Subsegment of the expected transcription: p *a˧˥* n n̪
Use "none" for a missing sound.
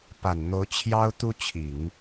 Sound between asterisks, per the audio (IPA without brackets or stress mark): a˨˩